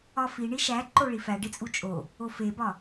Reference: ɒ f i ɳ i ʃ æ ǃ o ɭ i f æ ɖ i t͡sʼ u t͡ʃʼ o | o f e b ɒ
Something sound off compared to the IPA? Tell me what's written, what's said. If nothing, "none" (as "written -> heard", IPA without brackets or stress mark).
none